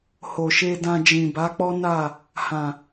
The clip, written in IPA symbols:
ho˨ʃe˧dã˧d͡ʒĩ˨ ba˨˦k͡pɔ˦na˦˨ | hã˨

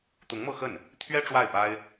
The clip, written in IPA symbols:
t̪ʊ˧˥ŋmɤ˥˧xə˥˩n | t̪ʰɥɛ˥ ʈ͡ʂwa˥˩ɪ̯pa˥ɪ̯

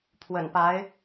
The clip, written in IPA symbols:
pʰwə̰˨˩npa˧˥ɪ̯

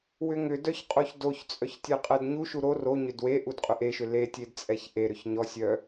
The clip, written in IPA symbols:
wʏŋʏdœç qʼoçdoçt͡sʼœç tʲɛqʼɛdɲuʃu ɾo roɲʏd we ʔudqʼʏʔeʃʏ letʲed t͡sʼɛçʔeɾʏç ɲɔsʲœ

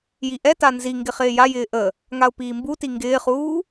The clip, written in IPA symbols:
jiʔɛta nziŋɡɪ χɪːjajɪː ʔə | ŋaʊ̯piːmbuti ŋɡɪːχuː

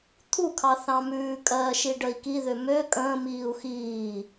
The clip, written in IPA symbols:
t̪ʰukʰɑ θɑ̃mʉːkʼɜːʃi ɖəi̯kiðø mø kʼə̃ː miːu̯xiː

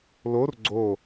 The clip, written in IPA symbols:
lor ɡ͡ǀo

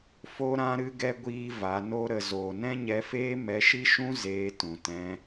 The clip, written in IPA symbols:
fo˦ɾã˦ ɾɨ˦ɡɛ˦ ɡʷiː˧ va˨˦no˦ɾə˧ zoː˨nɛ̃˦ɲɛ˧feː˦ mɛ˧ʃi˦ʃũ˦ zeː˧ tũ˨tɛ̃˧

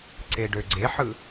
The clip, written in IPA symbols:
ǀeɖøɡ͡ǀeħɯ

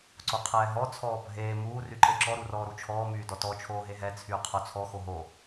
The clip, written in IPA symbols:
ǀoqʰɛːɦɔ t͡sʰɔːbʱeː muː ryǃeǁɔ ɾurɔːɾut͡ʃʰɔː myːdɔtɔ t͡ʃʰoːɦeɦɛ t͡sʰyːqʰot͡sʰɔ xoɦo

